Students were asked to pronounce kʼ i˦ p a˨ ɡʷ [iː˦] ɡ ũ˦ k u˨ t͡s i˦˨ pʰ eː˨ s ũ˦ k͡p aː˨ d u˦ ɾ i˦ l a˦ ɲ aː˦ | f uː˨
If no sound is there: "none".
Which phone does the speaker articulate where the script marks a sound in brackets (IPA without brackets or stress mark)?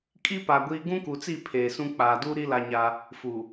iː˦